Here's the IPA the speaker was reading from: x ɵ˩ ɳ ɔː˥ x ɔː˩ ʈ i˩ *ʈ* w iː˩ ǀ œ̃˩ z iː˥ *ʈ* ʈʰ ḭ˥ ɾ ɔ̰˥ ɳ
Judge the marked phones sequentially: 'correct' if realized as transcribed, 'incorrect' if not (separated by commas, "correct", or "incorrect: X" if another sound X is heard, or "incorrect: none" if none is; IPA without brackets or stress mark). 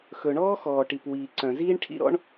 incorrect: p, incorrect: ɳ